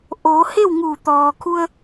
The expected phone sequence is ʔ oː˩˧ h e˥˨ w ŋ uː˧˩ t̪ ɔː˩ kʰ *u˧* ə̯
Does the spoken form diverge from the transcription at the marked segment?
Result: no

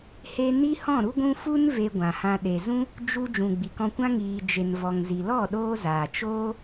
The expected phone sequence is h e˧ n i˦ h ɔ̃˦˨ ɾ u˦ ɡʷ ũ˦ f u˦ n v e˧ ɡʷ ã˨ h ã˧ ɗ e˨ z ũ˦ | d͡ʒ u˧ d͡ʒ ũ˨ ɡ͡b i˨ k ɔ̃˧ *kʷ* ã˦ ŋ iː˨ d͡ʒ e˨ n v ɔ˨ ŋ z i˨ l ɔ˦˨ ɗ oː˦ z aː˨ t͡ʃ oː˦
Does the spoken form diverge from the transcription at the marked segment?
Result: no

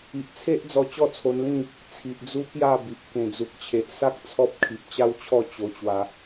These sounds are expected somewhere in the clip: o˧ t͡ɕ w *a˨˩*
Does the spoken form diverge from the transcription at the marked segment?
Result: yes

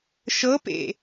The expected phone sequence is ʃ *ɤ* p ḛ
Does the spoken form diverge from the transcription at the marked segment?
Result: no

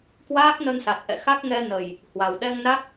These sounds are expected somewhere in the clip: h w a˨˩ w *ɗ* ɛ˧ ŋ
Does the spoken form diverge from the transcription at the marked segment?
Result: no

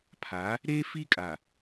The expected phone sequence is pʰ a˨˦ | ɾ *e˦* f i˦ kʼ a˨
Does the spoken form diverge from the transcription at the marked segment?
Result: no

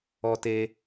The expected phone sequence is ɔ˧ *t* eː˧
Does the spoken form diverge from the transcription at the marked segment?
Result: no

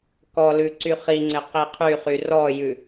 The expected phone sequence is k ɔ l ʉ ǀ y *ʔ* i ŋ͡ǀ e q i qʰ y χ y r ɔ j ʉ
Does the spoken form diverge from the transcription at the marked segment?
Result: yes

